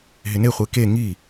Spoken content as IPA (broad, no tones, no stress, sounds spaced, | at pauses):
ɦ ɪ n e χʷ e k e ŋ i